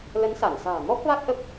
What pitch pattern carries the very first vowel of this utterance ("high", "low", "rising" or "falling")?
rising